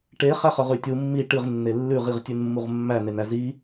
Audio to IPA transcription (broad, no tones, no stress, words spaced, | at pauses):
ʈe χæχœʁʉtʲu mːi ʈɨʁ nːelːʉʁ iʁtʲʉnmːuʁmːæ nenæzi